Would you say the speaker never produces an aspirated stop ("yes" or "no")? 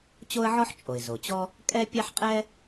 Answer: yes